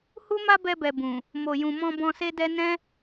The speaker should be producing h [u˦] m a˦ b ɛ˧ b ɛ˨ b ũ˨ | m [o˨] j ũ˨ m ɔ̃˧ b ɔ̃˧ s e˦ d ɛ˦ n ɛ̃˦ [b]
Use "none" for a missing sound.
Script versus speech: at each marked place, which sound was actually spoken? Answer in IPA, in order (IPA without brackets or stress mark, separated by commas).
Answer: u˦, o˨, none